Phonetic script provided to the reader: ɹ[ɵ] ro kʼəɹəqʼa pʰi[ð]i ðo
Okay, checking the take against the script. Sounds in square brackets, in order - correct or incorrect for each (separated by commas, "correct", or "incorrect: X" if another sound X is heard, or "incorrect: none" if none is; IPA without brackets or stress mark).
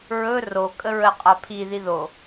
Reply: correct, correct